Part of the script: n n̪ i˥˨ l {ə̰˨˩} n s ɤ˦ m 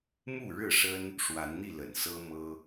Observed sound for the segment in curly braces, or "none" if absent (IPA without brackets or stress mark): ə̰˨˩